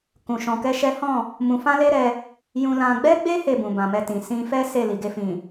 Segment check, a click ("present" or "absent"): absent